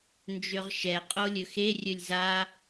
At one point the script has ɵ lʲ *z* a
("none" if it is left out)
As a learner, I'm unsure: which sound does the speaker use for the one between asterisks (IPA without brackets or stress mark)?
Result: z